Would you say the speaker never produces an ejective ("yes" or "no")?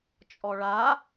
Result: no